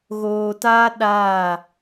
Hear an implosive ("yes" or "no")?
yes